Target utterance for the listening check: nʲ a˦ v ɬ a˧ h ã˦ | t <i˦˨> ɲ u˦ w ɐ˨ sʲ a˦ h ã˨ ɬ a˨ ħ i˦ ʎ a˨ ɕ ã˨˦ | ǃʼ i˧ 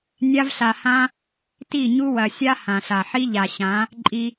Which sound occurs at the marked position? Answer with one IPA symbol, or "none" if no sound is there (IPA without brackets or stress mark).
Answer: i˦˨